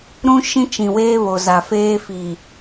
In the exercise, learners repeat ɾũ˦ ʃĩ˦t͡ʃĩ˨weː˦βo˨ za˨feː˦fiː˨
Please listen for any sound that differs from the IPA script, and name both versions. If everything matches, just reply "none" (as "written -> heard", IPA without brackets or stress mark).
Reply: none